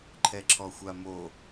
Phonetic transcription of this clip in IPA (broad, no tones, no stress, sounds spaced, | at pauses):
ǃʰ ɛ ǁʰ ɔ xʷ a m o